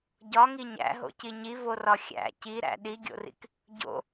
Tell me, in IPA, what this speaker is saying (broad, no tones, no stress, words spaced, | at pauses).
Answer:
ɟɒŋi ɲæ̰ɦo̰ci ɲivorɒ xʲæ̰ ciɾæ̰ ɗiɡʲo̰rḭk | ɟo̰